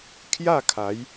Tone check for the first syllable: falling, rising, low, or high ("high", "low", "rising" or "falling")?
falling